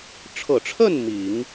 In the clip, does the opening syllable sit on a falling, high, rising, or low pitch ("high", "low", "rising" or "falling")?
low